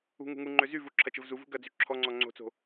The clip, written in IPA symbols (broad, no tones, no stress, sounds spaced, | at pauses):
ṳ ŋ ṳ ŋ u ŋ͡ǃ ø z y v u ǁʰ ɐ t͡ʃ ə v z u v ṳ ɡ ɐ d͡z y ǁʰ ɔ ŋ͡ǀ ɔ ŋ͡ǀ o̤ t͡s o̤